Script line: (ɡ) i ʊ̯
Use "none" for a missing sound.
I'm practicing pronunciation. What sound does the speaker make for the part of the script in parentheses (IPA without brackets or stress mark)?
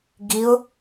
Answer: ɡ